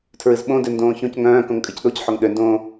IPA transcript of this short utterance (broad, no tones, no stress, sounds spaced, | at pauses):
tʰ ɹ ɨ z ɓ õ d ø n d õː ç õ c ŋ œ̃ː k õ ŋ kʼ ɨ c ɗ o c ħ o ŋ ɗ ø n d õː